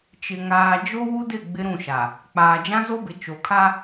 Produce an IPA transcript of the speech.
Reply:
t͡ʃ ɪ˨ ŋ aː˨ d͡ʒ o˦ w u˦ d ɪ˦˨ ɡ͡b ɪ˦ ɾ ũ˦˨ ʃ a˨ | k͡p aː˨ d͡ʒ ã˦ z o˦ b ɪ˨ t͡ʃ o˨ kʰ a˦

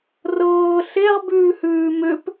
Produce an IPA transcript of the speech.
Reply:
r ɤː ɬ e ʁ b ʉː h ʉː m ʏ p

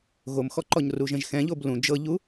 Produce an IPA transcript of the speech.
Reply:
ɣ o m x ɔ ǃ ɔ ɲ r u ʒ ɛ̃ ʒ x ɛ̃ ʎ o b l ũ d͡ʒ ɤ ʎ u

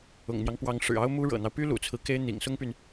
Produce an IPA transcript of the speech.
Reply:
ʊ̰˨˩ ŋ n̪ j ɑ˦ ŋ p w ɑ˧˥ ŋ ʂ ɻ̩˨˩ ɑ˥ ʊ̯ m u˥ ɻ ɤ̰˨˩ n̪ ɑ˦ ʊ̯ p y˥ l ṵ˨˩ t͡sʰ ɹ̩˦ k e˥ ɪ̯ n̪ ḭ˨˩ ŋ s ʊ˥ ŋ p y˨ n

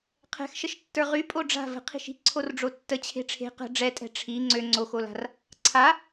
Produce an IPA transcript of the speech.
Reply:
qʰ ɛ̤ x ʃ ə ʃ tː ə˞ ʁ y pʼ o ɖ͡ʐ a̤ v ə̤ qʰ i̤ ʃ i̤ ǀʰ o r ɖ͡ʐ o tː ə t͡ɕʰ e̤ ʈ͡ʂʰ e̤ q ə̤ ɖ͡ʐ ɛ tʼ ɛ̤ ʈ͡ʂʰ i ŋ͡ǀ ø ŋ͡ǀ o x o l a̤ r | ǀʰ a

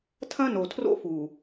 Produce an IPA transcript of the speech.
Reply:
tʰ ɐ̃˦ n o˨ tʰ r o̰˦ f u˨

